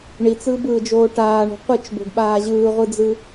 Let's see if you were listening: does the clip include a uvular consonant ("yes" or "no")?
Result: yes